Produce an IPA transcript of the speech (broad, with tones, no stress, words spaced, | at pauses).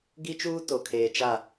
ɡi˦t͡ʃuː˦ to˨kʰeː˨ t͡ʃa˦˨